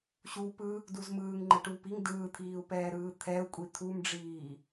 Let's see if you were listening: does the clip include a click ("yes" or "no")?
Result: yes